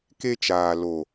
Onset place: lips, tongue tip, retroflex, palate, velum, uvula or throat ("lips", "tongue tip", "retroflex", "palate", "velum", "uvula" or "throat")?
velum